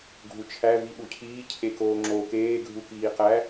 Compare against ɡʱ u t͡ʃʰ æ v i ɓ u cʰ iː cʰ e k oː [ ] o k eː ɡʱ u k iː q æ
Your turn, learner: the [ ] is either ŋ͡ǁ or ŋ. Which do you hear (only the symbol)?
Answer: ŋ͡ǁ